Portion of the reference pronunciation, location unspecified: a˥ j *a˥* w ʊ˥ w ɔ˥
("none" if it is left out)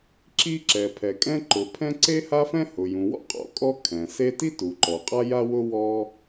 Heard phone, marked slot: a˥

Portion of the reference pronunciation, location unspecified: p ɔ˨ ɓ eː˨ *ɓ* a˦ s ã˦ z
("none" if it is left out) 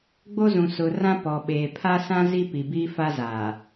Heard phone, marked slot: pʰ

